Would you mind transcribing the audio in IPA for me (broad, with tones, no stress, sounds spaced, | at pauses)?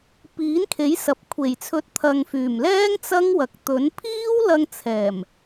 p iː˨˥ n kʰ e˨˥ j s ɐ˨ p̚ kʷʰ e˨˩ j t͡sʰ ɵ˨˥ t̚ t̪ʰ ɐ˨ ŋ f yː˨˩ m l ɛː˥ ŋ t͡s ɐ˥ ŋ w ɐ˨˥ k̚ t̪ ɵ˨˥ n pʰ iː˥ w l ɐ˧ ŋ t͡sʰ ɛː˨˩ m